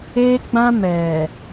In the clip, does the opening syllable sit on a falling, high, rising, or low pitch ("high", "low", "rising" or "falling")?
high